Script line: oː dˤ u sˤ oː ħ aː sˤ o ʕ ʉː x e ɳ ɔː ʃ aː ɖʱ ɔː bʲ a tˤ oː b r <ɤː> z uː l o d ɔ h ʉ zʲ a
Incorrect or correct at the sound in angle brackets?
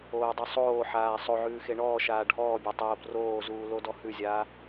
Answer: incorrect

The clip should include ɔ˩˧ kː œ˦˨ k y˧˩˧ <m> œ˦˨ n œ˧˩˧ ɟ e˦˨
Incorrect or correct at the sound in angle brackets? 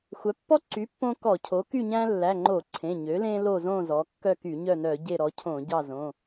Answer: incorrect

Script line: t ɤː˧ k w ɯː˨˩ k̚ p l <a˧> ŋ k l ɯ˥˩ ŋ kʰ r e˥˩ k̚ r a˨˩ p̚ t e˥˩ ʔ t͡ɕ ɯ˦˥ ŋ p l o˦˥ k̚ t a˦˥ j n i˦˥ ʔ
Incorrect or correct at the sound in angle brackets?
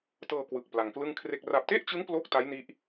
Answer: correct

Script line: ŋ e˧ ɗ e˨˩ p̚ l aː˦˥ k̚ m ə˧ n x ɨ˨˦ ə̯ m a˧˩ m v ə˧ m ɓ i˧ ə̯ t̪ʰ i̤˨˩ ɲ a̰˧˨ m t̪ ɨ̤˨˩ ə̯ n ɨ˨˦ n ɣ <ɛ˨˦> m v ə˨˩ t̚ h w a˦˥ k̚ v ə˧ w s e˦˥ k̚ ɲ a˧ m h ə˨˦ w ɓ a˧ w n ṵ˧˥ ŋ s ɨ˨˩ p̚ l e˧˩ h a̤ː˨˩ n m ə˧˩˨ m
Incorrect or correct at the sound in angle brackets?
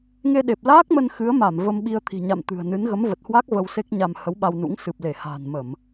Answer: incorrect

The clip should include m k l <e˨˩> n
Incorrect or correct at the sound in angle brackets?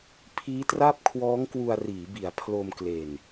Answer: correct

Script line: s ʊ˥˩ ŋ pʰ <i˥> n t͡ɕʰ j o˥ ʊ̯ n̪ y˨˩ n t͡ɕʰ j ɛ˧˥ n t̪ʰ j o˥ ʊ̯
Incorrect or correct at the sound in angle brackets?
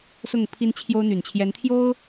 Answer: correct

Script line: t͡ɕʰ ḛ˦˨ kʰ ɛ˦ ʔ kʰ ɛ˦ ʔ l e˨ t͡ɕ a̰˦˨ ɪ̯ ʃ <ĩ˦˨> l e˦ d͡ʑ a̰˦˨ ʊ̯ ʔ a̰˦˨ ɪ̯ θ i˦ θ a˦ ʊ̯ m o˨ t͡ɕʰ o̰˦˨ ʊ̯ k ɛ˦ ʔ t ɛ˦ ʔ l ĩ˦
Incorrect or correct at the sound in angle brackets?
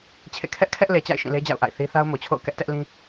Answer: correct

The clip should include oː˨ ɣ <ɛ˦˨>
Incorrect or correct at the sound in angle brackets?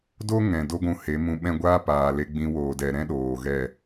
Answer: correct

